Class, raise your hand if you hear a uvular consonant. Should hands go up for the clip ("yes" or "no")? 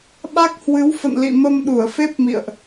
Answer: no